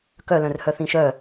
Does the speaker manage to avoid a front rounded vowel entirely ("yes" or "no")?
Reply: no